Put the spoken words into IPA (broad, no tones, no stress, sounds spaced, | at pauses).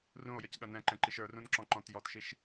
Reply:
r ũ o̯ j ə c ɠ ɐ n ɛ̃ ǃ ɛ̃ ǃ i ʃ ə˞ r ũ n ǁ ɔ̃ ǃ ɔ̃ t j ɔ t ʃ i ʃ